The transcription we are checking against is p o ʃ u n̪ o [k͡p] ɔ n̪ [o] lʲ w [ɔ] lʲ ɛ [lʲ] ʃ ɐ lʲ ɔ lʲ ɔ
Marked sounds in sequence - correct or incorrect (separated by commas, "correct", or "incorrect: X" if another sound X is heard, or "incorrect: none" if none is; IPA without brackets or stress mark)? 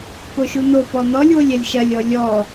incorrect: p, incorrect: ɔ, incorrect: o, correct